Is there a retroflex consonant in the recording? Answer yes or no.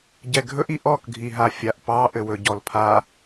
no